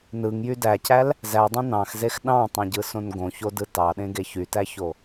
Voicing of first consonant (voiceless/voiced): voiced